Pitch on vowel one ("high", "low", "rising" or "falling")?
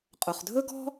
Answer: low